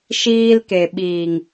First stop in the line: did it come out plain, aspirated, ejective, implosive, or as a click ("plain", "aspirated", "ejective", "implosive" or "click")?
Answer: plain